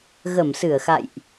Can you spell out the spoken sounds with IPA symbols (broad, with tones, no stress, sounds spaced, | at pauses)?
ɣ ə˧˩ m s ɨ˧˩ ə̯ x a̰˧˨ j ʔ